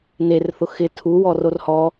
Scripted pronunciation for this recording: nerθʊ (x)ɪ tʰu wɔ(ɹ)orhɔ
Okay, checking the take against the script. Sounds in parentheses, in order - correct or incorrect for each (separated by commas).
correct, incorrect